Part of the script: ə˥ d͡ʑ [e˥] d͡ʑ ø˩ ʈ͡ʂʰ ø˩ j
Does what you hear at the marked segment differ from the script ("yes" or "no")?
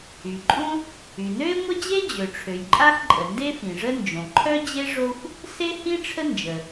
no